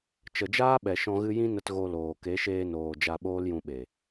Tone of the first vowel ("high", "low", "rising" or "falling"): low